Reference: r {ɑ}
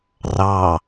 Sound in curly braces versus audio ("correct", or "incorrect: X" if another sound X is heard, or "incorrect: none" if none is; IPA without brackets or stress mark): correct